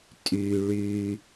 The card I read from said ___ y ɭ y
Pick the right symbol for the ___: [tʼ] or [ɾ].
tʼ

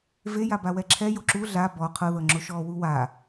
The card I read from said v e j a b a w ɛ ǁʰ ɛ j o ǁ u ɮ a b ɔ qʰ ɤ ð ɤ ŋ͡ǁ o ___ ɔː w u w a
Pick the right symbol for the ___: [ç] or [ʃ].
ʃ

